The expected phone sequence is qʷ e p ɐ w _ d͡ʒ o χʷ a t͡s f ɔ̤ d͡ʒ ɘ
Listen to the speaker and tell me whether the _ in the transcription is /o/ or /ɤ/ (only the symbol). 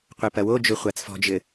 o